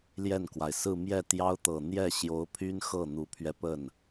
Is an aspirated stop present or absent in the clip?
present